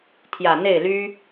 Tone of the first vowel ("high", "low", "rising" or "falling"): low